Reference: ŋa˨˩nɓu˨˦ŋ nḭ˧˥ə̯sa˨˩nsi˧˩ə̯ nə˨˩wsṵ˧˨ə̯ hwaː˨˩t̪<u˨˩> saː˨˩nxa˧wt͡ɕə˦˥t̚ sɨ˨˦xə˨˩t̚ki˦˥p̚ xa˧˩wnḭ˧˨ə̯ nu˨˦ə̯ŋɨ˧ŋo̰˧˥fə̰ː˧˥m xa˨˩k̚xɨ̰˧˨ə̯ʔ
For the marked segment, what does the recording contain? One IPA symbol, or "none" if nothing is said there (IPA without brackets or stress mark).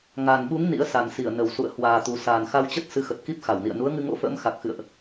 u˨˩